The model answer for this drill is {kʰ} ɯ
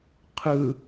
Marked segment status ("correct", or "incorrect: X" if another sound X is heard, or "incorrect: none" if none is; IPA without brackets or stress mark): incorrect: qʰ